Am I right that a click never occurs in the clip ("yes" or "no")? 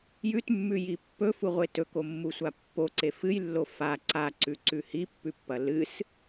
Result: no